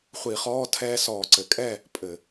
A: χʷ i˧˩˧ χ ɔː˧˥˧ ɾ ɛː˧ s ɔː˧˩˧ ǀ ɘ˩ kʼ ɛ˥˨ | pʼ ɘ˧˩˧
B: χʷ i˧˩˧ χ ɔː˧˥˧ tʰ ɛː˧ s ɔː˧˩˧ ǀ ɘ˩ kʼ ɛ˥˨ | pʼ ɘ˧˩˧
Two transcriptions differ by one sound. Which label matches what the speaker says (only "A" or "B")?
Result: B